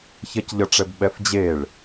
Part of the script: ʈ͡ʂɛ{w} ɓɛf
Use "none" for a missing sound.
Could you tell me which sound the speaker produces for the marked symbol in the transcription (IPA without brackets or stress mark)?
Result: b